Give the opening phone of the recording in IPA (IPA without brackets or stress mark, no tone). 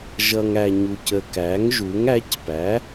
ʒ